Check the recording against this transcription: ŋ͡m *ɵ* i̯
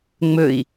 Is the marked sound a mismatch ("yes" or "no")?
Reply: no